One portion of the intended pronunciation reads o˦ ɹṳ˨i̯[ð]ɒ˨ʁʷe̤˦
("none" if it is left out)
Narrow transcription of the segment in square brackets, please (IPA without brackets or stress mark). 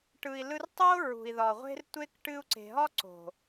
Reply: ð